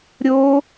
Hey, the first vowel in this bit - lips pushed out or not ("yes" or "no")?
yes